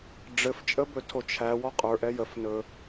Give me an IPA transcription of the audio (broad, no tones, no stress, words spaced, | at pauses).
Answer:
ɖ͡ʐɘf t͡ʃʼəbɵtʰot͡ʃʰæ wɔqʼə˞ ʔɛjəf nɵ